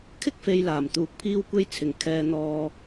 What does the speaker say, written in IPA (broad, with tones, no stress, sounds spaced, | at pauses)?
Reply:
kʰ ɪ˥ k̚ f e˨ j l aː˨˩ m t̪ uː˨˥ k̚ pʰ iː˥ w kʷ e˥ j t͡sʰ ɪ˨˩ ŋ kʰ ɛː˨ n̪ ɔː˨